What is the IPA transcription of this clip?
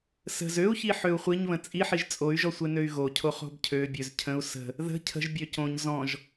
s ə̤ z ø u̯ ç i ħ ø u̯ χʷ i ɲ β ə̃ t͡sʼ i ħ i ʒ t͡sʼ o y̯ ʒ ɔ sʷ e n ø y̯ ɣ o cʰ o χ o̤ b cʰ ø bʲ ø z cʰ ə̃ u̯ s ə̤ | ð ə̤ cʰ ə̤ ʒ bʲ ø c õ ɲ z ɔ̃ ʒ

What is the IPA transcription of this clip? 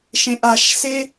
ʃ ẽ ʔ a ʃ s e

